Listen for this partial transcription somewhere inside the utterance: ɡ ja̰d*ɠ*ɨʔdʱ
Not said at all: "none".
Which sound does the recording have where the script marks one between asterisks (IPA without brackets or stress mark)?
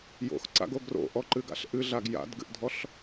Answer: ɡ